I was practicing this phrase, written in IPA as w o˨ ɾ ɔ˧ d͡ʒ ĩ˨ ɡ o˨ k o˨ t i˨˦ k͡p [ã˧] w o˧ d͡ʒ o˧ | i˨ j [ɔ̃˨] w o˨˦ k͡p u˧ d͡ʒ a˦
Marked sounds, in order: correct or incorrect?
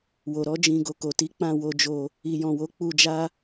correct, correct

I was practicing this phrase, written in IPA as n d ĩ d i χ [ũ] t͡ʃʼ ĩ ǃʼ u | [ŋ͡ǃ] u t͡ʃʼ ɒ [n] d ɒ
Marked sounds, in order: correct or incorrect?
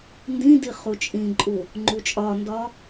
incorrect: u, correct, correct

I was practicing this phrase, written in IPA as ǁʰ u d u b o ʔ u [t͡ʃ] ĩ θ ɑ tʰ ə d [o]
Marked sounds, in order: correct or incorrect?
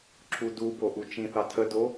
correct, correct

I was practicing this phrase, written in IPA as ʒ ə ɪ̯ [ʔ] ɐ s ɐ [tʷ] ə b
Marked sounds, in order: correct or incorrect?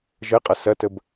incorrect: qʼ, incorrect: t

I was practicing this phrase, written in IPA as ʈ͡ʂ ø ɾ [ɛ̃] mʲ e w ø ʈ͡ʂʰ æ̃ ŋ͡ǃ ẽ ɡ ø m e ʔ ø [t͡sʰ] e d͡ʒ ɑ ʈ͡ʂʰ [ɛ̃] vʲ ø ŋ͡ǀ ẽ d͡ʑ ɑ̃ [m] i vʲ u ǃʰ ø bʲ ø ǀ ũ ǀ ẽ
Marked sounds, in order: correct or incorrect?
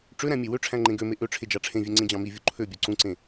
incorrect: æ̃, incorrect: ʈ͡ʂʰ, incorrect: ẽ, correct

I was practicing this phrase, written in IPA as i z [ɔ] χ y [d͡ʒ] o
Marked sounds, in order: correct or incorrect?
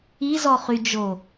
correct, correct

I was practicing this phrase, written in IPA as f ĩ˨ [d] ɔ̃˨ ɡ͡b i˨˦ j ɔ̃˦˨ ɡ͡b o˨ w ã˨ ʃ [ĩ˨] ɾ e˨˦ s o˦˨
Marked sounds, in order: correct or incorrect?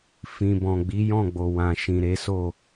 incorrect: b, correct

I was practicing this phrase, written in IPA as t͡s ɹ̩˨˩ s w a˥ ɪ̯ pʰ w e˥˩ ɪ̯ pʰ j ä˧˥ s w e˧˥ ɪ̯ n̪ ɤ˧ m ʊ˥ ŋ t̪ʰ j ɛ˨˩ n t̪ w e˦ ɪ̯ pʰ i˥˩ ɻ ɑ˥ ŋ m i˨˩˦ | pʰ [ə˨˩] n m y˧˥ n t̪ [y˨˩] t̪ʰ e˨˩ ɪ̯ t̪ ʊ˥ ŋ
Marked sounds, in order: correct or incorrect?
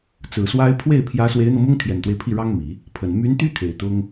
correct, incorrect: y˥

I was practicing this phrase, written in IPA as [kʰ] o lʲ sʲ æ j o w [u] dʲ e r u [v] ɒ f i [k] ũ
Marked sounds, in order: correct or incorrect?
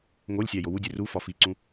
incorrect: ŋ, correct, incorrect: f, incorrect: ǀ

